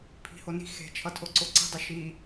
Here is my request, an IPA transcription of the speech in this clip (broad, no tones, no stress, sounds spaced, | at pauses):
pʰ i̤ h o n i̤ x e̤ t͡ʃʰ ʌ tʰ o ǀ o ǀ i̤ dˤ i ʃ i